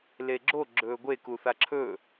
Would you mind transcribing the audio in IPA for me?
l e ɡ͡ǁ o ɡ͡ǁ ɵː ɡʷ e k u θ a ǁʰ ɵ

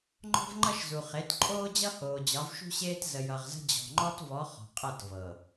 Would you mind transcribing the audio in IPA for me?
ŋ͡ǃ ɔ̤˦ v ŋ͡ǃ ʌ˦ ʃ z u˨ χ e˨˦ t ǃʼ oː˦ d͡ʑ ʌ˦ h oː˨ d͡ʑ ɒ˨˦ v ʃ ṳ˦ ɕ eː˦ t z ə˨ j ʌ˨ ʁ z ə̤˦ d͡ʑ ɔ̤˨ ŋ͡ǃ ɔ˦ t v ɔ˨˦ χ ɔ̤˨ qʼ ʌ˦˨ t v ɤ˨

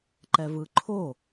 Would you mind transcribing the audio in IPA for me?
ǃ ɛ v ɯ ǃʰ o

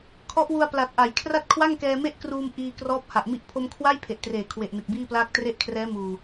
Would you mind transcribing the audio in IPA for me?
kʰ ɔ˦˥ ʔ w u˧ a̯ p l a˨˩ t̚ ʔ a˩˦ j kʰ r a˥˩ t̚ kʰ w a˥˩ ŋ k ɛː˧ m e˥˩ ʔ k r uː˧ m ʔ iː˧ k r ɔː˦˥ p̚ h a˨˩ ʔ m i˦˥ ʔ pʰ o˧ m kʰ w a˥˩ j pʰ e˨˩ ʔ t r eː˨˩ kʰ w e˨˩ ʔ n ɯ˨˩ k̚ b iː˥˩ p l aː˥˩ k̚ t r e˥˩ ʔ kʰ r ɛː˦˥ m uː˨˩

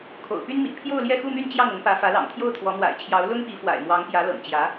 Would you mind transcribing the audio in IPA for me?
kʰ o̰˨˩ ʊ̯ p y˥ n m ḭ˨˩ pʰ j o˥˧ ʊ̯ l j ɛ˥˧ x u˥˧ m y˥˧ n t͡ɕ j ɑ˥˩ ŋ ʊ˧˥ ŋ p ä˧˥ f ä˧˥ l ɑ̰˨˩ ŋ t̪ʰ j o˥˩ ʊ̯ t̪ʰ w ɔ˧˥ m w a̰˨˩ ɪ̯ t͡ɕʰ j ɑ˧˥ ʊ̯ l ʊ˥ ŋ p i˧˥ f w a̰˨˩ ɪ̯ m w ɑ˧˥ ŋ p j ä˧˥ l ɤ̰˨˩ ŋ t͡ɕ j ä˧˥

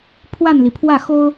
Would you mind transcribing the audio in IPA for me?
pʰ w a˥˩ n l i˩ pʰ w ä˥˩ x o˥ ʊ̯

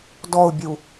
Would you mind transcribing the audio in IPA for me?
d ɔ ʊ̯ bʲ u

